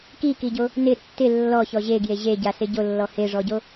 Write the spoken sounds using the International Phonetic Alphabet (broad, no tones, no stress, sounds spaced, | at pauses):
k i k i ɟ o | n ɪ tː ɪ lː ɔ ç ɔ ʑ e ɡ j e ʑ e ɟ a s ɪ ɟ o lː ɔ h e ʐ ɔ ɟ o